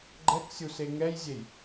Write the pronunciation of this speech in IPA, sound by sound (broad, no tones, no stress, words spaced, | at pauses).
ɡ͡ǃɛksʲuse ŋɛjzʲej